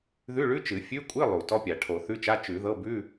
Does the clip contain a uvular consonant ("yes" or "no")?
no